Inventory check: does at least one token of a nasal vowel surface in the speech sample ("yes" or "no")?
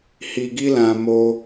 yes